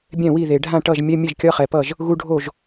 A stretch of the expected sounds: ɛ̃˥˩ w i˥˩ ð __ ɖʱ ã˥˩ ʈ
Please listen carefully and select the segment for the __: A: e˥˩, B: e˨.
B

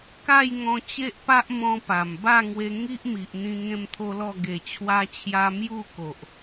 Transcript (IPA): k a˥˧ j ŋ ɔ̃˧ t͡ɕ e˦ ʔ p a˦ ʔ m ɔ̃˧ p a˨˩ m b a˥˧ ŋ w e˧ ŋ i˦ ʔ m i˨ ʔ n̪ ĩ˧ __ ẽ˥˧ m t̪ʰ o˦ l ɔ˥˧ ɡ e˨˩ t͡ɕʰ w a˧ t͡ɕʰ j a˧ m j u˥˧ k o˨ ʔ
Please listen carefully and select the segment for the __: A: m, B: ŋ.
B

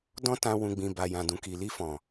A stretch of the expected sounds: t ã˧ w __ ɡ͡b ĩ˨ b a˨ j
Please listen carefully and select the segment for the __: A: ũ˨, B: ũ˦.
A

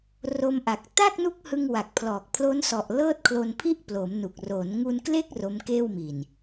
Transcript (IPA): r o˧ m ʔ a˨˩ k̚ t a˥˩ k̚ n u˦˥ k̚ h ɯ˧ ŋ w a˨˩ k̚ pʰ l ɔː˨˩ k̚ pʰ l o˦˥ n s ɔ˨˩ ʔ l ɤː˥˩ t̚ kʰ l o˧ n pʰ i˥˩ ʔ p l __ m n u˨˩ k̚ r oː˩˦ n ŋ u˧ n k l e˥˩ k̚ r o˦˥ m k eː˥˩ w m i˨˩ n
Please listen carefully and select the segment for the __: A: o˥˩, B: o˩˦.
B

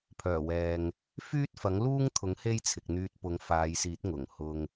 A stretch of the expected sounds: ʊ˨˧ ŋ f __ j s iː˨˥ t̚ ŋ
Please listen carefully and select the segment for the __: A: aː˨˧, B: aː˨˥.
A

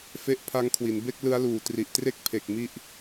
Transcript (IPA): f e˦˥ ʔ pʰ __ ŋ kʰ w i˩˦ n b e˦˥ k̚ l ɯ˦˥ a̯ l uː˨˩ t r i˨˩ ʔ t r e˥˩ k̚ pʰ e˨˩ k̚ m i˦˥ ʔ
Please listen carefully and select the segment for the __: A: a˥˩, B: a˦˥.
B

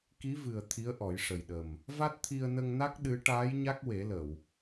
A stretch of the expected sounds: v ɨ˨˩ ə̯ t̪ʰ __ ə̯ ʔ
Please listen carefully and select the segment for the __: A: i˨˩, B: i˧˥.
B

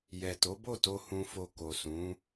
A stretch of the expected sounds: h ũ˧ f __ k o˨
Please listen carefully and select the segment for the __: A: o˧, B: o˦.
A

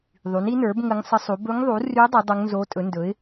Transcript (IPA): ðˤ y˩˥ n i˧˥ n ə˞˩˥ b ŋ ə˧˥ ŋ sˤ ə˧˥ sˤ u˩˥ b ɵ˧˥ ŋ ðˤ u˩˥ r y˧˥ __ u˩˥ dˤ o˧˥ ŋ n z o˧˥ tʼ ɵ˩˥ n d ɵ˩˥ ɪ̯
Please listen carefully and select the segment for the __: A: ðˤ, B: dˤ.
B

